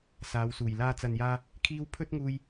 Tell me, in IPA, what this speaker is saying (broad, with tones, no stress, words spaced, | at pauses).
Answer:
saː˨˧wsuː˨˩j laː˧ t͡sɐ˨njaː˧ | kʰiː˥w pʰɵ˥t̚ŋuː˧j